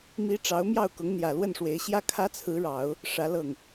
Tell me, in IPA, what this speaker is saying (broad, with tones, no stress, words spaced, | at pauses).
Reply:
mi˧˥ ʈ͡ʂɑ˧˥ʊ̯mjɑ˥˩ʊ̯ kʊ˧˥ŋn̪jä˨˩lwə˥˩nʂwe˧˥ɪ̯ ɕjä˥kʰä˥t͡sʰɹ̩˧˥ɻɑ˨˩˦ʊ̯ | ʂä˧˥lɤ˥˩ŋ